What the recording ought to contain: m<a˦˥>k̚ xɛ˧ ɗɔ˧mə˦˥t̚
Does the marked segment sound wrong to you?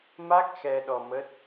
no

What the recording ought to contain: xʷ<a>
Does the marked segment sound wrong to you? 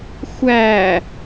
yes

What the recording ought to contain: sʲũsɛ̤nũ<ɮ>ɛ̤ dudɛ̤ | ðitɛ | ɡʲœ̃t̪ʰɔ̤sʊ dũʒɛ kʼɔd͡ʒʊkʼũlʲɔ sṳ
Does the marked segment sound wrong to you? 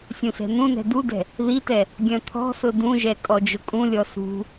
yes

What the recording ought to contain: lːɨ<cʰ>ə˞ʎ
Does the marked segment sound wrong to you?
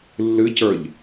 yes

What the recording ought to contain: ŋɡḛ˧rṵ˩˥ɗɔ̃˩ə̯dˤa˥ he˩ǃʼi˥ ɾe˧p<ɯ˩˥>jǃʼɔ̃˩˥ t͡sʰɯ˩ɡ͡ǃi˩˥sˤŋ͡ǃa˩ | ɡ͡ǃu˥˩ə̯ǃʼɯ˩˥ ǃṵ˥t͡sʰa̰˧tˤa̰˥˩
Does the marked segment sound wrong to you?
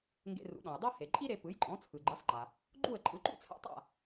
no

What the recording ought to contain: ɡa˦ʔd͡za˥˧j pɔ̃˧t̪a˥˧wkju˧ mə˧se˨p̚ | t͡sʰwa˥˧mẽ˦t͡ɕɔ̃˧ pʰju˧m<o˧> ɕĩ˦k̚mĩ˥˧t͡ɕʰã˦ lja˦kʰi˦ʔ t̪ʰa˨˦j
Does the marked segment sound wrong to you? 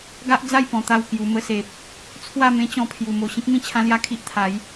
no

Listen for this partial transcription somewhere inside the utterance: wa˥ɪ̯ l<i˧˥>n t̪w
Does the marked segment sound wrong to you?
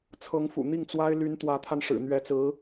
yes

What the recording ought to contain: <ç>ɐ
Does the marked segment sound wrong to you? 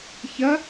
no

